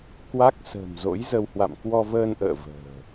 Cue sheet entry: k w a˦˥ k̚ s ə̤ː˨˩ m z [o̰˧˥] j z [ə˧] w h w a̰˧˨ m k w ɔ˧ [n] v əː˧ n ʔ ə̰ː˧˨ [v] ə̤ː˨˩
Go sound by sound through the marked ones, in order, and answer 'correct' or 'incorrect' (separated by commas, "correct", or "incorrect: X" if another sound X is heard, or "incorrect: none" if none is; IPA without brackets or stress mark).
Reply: correct, correct, incorrect: none, correct